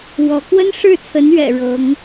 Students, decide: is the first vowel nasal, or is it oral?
oral